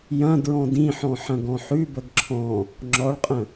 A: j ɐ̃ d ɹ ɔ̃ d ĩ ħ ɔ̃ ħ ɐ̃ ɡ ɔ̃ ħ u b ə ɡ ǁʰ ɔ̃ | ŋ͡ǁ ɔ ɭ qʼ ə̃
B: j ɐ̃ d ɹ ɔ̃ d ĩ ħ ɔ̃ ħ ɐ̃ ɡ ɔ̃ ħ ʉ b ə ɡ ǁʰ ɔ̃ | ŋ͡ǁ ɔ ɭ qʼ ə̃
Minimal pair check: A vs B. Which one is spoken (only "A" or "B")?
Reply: B